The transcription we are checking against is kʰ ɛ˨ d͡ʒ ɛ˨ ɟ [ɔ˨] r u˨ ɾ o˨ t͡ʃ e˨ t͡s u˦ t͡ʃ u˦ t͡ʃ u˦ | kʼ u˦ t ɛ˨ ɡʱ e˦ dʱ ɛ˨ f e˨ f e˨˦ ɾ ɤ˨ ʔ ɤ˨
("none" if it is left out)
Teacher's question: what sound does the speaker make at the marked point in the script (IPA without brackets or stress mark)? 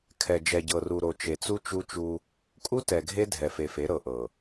ɤ˨